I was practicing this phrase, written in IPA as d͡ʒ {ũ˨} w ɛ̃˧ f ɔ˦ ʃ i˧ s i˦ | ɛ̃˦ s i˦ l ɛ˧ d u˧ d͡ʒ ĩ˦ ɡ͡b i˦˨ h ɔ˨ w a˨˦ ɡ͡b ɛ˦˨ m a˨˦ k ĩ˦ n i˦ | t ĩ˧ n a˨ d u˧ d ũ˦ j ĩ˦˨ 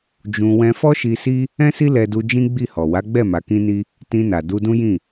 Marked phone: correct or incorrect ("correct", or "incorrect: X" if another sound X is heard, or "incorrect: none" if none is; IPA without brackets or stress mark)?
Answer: incorrect: ũ˧